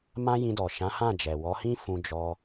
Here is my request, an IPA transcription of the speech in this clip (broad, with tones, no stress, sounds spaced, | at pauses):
m ã˦ j ĩ˧ d ɔ˨ ʃ ã˨˦ h ã˦˨ d͡ʒ ɛ˨ w ɔ˨˦ h ĩ˦ f ũ˧ d͡ʒ ɔ˧